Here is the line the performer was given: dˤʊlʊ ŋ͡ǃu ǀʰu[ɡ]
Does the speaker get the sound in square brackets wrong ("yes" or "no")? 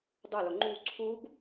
no